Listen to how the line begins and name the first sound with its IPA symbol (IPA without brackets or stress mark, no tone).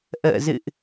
ʔ